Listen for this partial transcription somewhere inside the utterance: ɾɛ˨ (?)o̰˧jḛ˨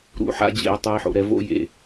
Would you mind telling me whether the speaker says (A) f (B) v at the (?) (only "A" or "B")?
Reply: B